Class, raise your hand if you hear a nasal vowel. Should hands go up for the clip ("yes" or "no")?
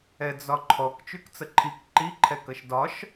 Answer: no